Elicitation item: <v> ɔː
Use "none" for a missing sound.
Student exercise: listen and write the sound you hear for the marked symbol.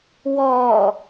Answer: w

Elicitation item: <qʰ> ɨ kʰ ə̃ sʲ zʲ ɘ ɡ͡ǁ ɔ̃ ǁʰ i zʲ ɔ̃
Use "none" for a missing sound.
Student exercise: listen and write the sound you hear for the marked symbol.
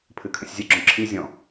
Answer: pʰ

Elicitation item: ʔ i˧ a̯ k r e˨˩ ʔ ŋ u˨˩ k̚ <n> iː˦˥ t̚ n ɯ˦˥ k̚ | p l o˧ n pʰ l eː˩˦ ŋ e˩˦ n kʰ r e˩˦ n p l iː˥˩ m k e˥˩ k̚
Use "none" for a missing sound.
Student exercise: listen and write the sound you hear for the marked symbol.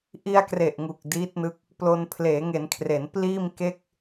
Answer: d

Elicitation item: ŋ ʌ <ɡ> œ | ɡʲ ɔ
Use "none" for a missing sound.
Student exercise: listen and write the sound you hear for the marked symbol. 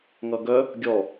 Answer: ɡ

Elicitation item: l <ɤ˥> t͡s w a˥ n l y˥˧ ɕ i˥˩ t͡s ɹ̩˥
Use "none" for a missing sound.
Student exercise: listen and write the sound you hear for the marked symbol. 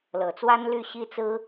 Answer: ɤ˨˩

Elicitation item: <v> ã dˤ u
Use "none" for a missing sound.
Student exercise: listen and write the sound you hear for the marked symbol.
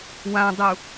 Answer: w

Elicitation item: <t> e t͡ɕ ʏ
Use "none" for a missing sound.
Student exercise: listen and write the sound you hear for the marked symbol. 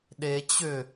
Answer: ɗ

